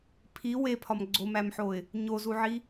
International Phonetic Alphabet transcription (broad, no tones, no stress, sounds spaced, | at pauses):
pʰ i w e pʰ ɒ m ɡ͡ǀ o m æ m ħ o ɪ̯ | ɲ o z u ʕ i